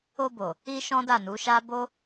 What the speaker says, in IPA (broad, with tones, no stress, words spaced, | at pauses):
o˧bo˨ | i˧ ʃɔ̃˦da˦˨nu˨˦ʃa˦ bo˦